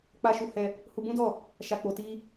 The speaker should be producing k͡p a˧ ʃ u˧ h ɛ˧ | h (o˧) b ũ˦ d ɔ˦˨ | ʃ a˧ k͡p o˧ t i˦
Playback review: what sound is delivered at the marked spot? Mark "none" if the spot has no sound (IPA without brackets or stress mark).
u˧